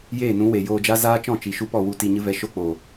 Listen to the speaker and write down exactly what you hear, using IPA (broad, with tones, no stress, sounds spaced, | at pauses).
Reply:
j eː˦˨ n ũ˨˦ w e˨ j oː˧ d͡ʒ a˦ z aː˦ t͡ʃ ɔ̃˦˨ t͡ʃ i˨ ʃ u˧ p ɔ˦˨ w u˧ t i˧ ɲ ɨ˦ v ɛ˧ ʃ o˦ k͡p o˨